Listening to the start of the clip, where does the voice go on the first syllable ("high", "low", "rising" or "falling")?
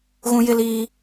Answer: high